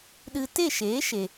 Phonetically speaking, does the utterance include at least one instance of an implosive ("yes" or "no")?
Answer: yes